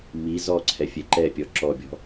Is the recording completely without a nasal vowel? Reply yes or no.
yes